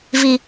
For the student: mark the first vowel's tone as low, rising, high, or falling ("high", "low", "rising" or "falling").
low